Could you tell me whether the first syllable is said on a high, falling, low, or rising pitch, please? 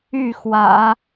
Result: falling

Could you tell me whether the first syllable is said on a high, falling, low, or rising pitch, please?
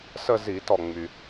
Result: falling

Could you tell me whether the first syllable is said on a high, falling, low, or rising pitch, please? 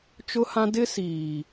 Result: high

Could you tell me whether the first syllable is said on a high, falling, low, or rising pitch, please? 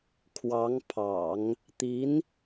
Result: rising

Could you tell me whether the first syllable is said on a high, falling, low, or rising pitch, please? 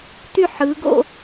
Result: falling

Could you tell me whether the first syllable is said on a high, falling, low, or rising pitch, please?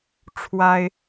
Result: high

